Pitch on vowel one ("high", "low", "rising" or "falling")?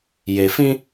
low